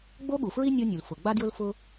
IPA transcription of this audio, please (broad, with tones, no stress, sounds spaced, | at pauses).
ɡ͡b o˥ ɠ u˩ f ɹ i˥ nʲ o˥ nʲ u˩ l f ʊ˩ ɡ͡b a˥ d j ʊ˥ l f ʊ˥